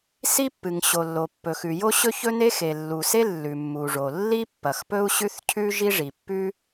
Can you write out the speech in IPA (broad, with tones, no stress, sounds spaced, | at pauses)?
s i˥ pː ɨ˩ ŋ ɕ o˩ lː o˩ pː ɵ˩ x ʉ˩ j o˥ ɕ ɵ˥ ç ɵ˥ n e˥ x e˩ lː u˩ s e˥ lː ʉ˩ mː u˩ ʐ o˩ lː i˥ pː ɐ˩ x p ɵ˥ u̯ ɕ ʉ˥ θ cʰ ʉ˥ ʒ i˥ ʐ i˩ pː ʉ˥